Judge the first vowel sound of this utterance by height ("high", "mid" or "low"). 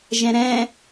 mid